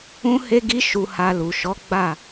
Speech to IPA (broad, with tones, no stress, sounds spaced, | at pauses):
ũ˦ h e˦ ɡ i˦ ʃ u˧ h a˧ l u˨ ʃ ɔ˨˦ ɡ͡b a˦˨